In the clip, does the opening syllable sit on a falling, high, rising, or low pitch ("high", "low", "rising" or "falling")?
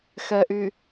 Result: low